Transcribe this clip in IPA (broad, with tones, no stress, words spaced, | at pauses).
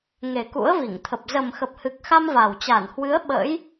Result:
ŋe˨˩ kṵ˧˥ə̯vi˧˩ŋt̪ʰə˨˩p̚ zə˨˩mxə˨˩p̚hɨ˨˩k̚xa˧m va˨˩w t͡ɕa˧˩nhwɨ˨˦ə̯ ɓə̰˧˥j